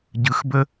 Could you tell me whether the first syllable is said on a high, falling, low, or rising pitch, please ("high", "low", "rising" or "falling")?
low